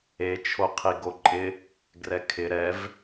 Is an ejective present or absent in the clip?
present